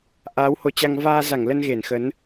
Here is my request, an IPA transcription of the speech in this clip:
ʔ aː˨˦ w h o˨˦ t͡ɕ a˧ ŋ v aː˧ z a˧˩ ŋ l ə˧ n ɣ e˧˩ n x ə˨˦ n

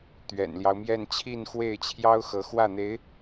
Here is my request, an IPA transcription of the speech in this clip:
t̪ ɥ ɛ̰˨˩ n l j ɑ˦ ʊ̯ m j ɛ˥˧ n t͡ɕʰ i˥˧ n x w e˥˩ ɪ̯ t͡ɕʰ j ɑ˥ ʊ̯ x ɤ˧˥ x w ä˥˩ n̪ e˧˥ ɪ̯

